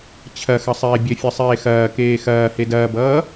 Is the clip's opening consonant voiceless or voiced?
voiceless